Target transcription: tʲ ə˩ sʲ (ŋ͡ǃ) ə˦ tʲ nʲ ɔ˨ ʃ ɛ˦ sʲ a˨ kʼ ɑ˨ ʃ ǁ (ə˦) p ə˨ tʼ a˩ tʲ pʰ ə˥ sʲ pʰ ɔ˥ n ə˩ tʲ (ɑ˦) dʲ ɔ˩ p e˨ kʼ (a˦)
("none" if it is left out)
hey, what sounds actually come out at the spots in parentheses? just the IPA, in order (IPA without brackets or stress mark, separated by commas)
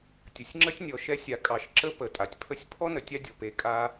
ŋ͡ǁ, ə˥, a˦, a˦